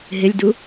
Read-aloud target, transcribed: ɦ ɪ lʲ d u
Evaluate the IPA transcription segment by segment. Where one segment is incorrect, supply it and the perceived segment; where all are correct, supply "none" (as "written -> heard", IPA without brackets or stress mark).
none